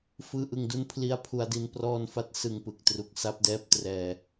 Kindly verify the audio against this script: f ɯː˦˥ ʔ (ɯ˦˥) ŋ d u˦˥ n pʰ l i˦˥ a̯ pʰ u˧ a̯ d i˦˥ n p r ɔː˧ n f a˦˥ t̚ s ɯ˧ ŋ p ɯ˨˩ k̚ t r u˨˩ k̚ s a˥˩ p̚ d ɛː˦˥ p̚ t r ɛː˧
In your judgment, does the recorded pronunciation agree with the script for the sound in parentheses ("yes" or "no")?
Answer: no